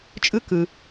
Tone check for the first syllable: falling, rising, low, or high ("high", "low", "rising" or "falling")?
high